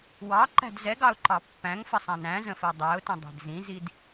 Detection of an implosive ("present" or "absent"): absent